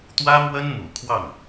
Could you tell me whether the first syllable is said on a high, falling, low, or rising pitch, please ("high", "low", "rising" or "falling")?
high